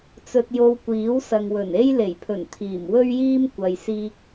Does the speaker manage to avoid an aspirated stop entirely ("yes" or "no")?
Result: no